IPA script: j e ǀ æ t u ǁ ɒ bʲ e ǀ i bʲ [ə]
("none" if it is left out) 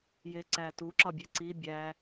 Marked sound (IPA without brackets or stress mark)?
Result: æ